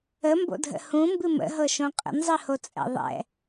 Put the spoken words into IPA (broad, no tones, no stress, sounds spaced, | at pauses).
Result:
ə m b o̰ dʱ ə̰ h ũ m b ɨ m ə̰ ɦ ɤ ʃ õ qʼ ə̰ n zˤ ɨ h o t͡sʼ ɛ̰ ðˤ ɛ̰